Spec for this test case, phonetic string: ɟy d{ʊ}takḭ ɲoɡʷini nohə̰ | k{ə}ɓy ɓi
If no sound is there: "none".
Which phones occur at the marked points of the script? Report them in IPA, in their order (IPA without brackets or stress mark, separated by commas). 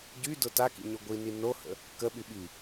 ʊ, ə